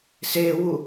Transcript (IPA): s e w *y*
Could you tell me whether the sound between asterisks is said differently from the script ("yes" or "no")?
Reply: yes